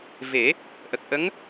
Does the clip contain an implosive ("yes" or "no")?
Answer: no